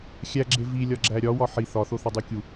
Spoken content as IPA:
xʲ æ ɡ͡ǁ e v i lʲ ɒ ɡ͡ǁ æ ɾʲ ɒ w ɒ ħ i θ ɒ θ o θ ɒ dˤ u kʲ u

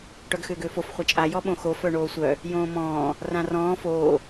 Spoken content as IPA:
ʈ œ ɡ x ʏː ɡ ʏː f o f χʷ ɐ t͡ʃʼ a j ɔ ɓ õ x o f œ ɳ oː sʷ œ | j õː m ɔ̃ː | r ã r ɔ̃ː f oː

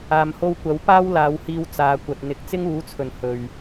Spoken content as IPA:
aː˧ m h o˥ w kʷ ɐ˨˥ w p aː˥ w l aː˨˧ w h iː˧ w t͡s aː˨˧ kʷ ɐ˨ t̚ n̪ ɪ˨ k̚ t͡s ɪ˥ ŋ uː˨˥ t͡sʰ ɵ˨˩ n h ɵ˨ ɥ

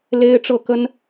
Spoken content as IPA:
l e˥ ɪ̯ ʈ͡ʂ ɤ˥˩ k ə˥ n

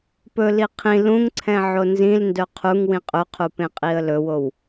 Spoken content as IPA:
p ɵ l i qʰ ĩ l ũ ŋ ǀʰ ɛ̃ ʕ o n z ĩ l n d œ qʰ u ŋ w ĩ qʼ ɵ qʰ u p ẽ qʼ i ə̯ l ɵ w o w

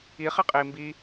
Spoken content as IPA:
i χ e qʼ iː m b i

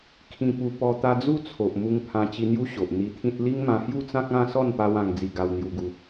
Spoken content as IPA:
kʰ ĩ˧ p u˧ p ɔ˧ t̪ a˧ d͡z u˦ t͡sʰ o˨ ʔ m u˧ ŋ pʰ ã˧ t͡ɕ i˧ n̪ j u˦ ɕ o˨ ʔ n̪ i˧ t̪ʰ ĩ˦ t̚ l i˦ ŋ m ã˧ h j u˥˧ t͡s ã˦ k̚ ã˥˧ s ɔ˥˧ n p a˧ w ã˧ ŋ d͡z i˧ ɡ a˧ w n̪ j u˧ ɡ u˧

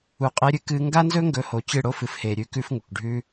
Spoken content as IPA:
u˨ qʼ e˧ ɾʲ ɨ˦ k ɨ˧ ŋ ɡ a˦ n z ɵ˦ ŋ ɡ ɵ˧ h o˨ t͡ɕ ɨ˦˨ ɽ o˦ f ɨ˨ f h e˨ ɾʲ ʉ˧ k ʉ˦ f ŋ u˨ k ɖʱ ʉ˧

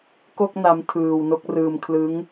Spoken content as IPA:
k o˥˩ k̚ n a˦˥ m tʰ ɯː˧ w n o˥˩ k̚ r ɯː˧ m kʰ l ɯ˦˥ ŋ

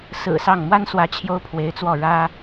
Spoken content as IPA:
s ɹ̩˨˩ s ɑ˥˩ ŋ m w a˥ n s w ä˧˥ t͡ɕʰ j o˥ ʊ̯ pʰ w e˧˥ ɪ̯ t͡s w ɔ˥˩ ɻ ä˥

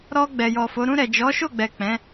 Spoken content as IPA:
ɾ ɔ˧ ɡ͡b ɛ˨ j ɔ˨ f o˨˦ ɾ ũ˧ ɾ ɛ˨ d͡ʒ ɔ˨˦ ʃ o˦˨ ɡ͡b ɛ˨ k͡p ɛ̃˨˦

